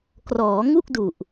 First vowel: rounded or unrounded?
rounded